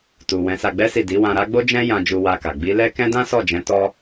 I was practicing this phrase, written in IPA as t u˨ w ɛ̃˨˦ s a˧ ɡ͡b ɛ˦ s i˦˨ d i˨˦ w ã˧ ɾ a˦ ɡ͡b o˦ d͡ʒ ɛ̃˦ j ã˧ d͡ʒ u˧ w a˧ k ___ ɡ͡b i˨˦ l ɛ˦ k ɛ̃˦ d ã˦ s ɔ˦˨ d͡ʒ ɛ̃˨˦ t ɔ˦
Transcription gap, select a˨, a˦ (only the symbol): a˨